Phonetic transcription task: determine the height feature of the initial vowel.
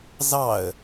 low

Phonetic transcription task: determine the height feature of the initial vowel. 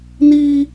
high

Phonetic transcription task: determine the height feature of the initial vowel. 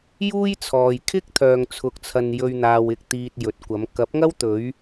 high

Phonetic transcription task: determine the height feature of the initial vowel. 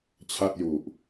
low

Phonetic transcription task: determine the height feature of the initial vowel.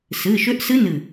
high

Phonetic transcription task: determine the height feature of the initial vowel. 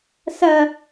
low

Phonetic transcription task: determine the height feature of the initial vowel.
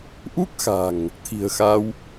high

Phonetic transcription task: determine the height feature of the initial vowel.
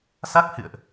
low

